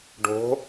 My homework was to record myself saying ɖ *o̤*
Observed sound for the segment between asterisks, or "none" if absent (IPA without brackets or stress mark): o̤